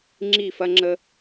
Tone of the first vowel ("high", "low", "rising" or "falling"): falling